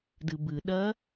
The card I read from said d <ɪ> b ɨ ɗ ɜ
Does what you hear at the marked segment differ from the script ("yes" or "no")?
yes